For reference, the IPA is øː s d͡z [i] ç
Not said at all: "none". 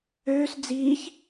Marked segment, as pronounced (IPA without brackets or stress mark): iː